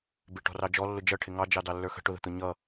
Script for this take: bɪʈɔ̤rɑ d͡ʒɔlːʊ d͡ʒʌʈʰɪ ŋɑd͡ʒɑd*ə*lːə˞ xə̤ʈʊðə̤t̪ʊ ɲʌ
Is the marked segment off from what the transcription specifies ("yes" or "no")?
yes